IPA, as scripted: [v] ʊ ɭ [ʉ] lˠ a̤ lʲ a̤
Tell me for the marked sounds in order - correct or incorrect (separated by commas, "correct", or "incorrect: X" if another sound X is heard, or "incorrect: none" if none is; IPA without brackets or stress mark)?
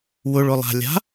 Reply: incorrect: w, incorrect: ʊ